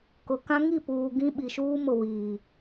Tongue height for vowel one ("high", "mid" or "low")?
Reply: high